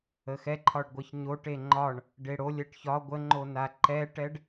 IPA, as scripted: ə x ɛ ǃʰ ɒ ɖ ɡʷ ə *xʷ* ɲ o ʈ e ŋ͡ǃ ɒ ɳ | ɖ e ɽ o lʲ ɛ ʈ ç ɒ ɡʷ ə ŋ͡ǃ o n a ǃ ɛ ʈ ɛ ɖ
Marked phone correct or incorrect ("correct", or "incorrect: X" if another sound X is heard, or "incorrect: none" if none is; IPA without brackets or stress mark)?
incorrect: ç